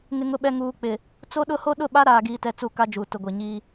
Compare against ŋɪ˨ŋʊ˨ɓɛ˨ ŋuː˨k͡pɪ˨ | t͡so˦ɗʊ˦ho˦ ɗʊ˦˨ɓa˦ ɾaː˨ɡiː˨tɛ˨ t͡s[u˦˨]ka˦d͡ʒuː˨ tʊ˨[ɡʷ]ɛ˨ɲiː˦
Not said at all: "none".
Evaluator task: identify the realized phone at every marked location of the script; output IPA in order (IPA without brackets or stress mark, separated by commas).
u˦˨, ɡʷ